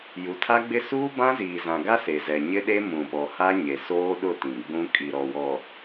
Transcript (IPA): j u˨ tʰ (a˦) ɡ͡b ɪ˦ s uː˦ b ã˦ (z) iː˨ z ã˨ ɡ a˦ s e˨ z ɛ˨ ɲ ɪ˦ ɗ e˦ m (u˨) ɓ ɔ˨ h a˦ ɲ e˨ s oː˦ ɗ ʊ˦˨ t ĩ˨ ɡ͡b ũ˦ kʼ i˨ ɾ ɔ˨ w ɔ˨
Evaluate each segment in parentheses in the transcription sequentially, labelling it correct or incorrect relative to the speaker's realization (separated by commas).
correct, correct, incorrect